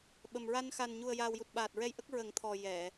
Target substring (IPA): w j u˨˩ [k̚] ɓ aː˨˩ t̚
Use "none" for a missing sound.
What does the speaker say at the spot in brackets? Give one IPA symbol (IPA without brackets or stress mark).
t̚